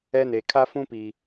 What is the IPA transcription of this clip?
ɛ˦ne˨ kʰa˦fũ˦pi˨

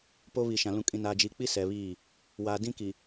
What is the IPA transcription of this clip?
po˦βi˨ʃã˨ lũ˨kʼĩ˨ na˨d͡ʒi˨k͡pi˦ sɛ˨βiː˦˨ | wa˨ dĩ˦ki˨

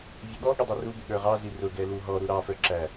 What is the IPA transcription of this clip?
vʲəɠɔɠʊ dˤɛrubɪ ɠə˞ʁɑzi rʊ ɡɛluɦɔɾu ɾɑfə˞ ǁæ

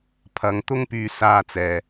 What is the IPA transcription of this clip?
pʰɐ˨˧ŋt̪ʊ˥ŋpyː˧ saː˧t͡sɛː˨

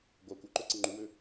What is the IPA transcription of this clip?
ɡʷa kʷœǃœǀə ŋ͡ǃuwø

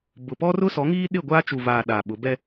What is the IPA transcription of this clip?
bʊ˨pɔ˦rʊ˦ sɔ˨˦ŋiː˦ɗɪ˦˨ ɡʷa˦ t͡ʃu˨vaː˨ ɗa˨ɓʊ˨˦ bɛ˦

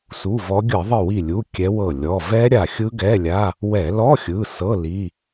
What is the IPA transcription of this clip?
su˩˧˩vɔ˨˦ɡʲɯ˧˩˧ ðˤɯ˧˩wi˧˩lʲu˩˧˩ kʲɛ˨˦wɤ˧˩ lʲɔ˩˧˩vɛ˦˥ ɾʲa˧˩xʲɯ˦˥ɡɛ˧˥˧lʲa˧˥˧ | wɛ˧˩˧lɔ˧˥˧xʲɯ˩˧˩ sɤ˧˥˧ li˧˥˧

